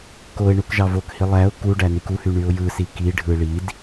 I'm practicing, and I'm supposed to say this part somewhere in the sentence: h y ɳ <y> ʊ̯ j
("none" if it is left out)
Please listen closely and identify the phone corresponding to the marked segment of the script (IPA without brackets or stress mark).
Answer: y